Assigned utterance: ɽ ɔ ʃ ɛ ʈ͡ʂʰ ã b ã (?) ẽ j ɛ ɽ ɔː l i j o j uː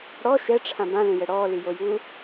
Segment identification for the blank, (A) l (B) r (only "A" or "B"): A